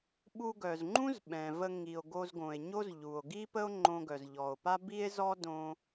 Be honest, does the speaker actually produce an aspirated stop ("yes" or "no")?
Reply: no